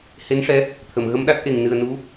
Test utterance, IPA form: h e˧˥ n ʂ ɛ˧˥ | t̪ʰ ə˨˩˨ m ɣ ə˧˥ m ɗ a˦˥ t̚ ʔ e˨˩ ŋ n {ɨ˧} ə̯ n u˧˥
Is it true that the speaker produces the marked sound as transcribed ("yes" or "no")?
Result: no